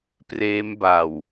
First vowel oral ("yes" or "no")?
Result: yes